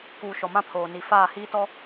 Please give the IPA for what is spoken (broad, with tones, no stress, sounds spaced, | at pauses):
k uː˨ ʃ ɔ˨ m ã˦ pʰ oː˨ n i˨ f aː˦˨ h iː˦ t ɔ˦